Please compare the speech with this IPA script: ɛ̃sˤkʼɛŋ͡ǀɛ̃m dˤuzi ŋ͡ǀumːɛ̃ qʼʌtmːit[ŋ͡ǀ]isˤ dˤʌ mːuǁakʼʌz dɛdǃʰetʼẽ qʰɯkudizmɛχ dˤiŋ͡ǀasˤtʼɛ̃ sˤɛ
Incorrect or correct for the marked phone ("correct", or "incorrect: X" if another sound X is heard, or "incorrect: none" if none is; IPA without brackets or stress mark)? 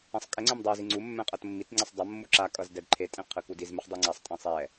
correct